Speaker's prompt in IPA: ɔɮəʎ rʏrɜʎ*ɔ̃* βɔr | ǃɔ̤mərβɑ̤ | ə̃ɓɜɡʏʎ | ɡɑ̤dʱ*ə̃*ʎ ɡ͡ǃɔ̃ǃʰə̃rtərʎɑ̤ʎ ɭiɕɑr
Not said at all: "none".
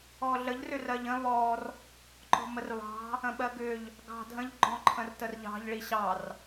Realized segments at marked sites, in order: ə̃, ə̃

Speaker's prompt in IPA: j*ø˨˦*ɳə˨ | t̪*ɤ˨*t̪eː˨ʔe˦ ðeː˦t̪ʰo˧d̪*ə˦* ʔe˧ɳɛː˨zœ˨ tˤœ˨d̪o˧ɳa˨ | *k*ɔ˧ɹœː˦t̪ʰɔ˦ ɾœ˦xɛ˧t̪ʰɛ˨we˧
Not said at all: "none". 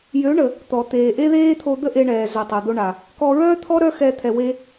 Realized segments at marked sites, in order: ø˨˦, ɔ˨, ə˦, k

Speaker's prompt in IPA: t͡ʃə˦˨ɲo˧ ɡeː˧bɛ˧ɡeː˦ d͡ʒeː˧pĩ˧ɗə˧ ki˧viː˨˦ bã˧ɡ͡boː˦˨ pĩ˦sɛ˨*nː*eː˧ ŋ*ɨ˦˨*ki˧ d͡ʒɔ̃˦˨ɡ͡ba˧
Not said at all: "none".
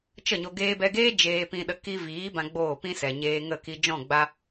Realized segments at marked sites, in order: ɲ, ə˦˨

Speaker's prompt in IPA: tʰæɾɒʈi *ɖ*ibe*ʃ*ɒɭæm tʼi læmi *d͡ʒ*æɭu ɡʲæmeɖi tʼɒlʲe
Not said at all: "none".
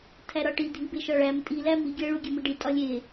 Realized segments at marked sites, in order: dʱ, ʃ, ɡʲ

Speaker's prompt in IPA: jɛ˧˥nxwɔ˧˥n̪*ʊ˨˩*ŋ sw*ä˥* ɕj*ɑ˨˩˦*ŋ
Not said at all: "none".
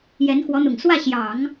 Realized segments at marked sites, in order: ʊ˨˩, ä˥˩, ɑ˨˩˦

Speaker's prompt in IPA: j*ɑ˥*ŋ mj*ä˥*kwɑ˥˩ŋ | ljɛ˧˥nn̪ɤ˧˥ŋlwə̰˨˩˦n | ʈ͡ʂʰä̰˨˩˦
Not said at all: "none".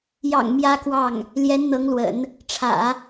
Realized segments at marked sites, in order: ɑ̰˨˩, ä˥

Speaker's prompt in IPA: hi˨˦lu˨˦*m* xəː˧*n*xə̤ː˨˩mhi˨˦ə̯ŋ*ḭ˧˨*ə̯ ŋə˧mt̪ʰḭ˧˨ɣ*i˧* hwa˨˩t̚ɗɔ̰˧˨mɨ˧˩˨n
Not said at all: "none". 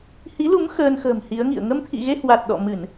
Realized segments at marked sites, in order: m, n, ḭ˧˨, e˧

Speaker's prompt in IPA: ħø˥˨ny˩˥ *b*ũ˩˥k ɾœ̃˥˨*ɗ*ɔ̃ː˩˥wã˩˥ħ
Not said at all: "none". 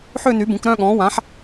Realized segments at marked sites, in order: b, ɠ

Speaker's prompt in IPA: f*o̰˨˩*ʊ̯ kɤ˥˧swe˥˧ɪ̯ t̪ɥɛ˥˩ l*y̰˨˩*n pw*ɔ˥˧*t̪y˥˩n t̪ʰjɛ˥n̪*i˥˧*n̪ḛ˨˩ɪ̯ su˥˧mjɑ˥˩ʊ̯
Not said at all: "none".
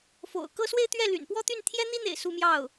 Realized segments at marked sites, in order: o̰˨˩, y̰˨˩, ɔ˥˧, i˥

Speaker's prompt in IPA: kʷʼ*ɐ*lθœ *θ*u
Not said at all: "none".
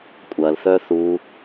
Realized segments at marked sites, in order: ɐ, θ

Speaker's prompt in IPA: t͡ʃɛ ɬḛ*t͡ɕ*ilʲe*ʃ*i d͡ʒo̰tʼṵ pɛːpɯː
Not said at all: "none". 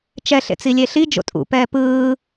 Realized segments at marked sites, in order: t͡s, ɬ

